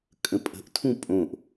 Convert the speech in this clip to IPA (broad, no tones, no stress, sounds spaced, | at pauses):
kʼ ə̃ pʼ ə̤ ʔ tʰ ũ pʼ õ ʔ